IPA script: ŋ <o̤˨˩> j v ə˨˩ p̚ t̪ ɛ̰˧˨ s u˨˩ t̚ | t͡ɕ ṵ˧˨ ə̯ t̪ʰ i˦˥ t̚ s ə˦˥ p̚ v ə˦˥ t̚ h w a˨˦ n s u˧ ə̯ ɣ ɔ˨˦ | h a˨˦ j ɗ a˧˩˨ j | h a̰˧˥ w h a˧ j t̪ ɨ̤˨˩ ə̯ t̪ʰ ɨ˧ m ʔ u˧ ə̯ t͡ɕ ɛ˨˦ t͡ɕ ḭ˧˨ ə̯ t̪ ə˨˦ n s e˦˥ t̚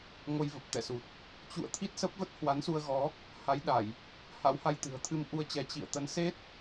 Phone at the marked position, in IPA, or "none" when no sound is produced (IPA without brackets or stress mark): o˧